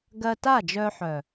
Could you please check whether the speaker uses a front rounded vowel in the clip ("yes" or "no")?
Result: yes